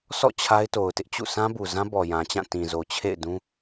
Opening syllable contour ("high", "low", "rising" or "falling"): falling